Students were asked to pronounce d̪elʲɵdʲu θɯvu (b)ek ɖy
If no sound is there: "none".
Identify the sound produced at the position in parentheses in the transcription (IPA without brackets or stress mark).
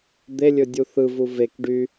v